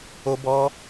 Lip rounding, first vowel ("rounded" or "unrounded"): rounded